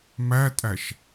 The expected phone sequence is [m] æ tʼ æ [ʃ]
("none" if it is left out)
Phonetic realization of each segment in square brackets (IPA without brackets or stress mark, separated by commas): m, ʃ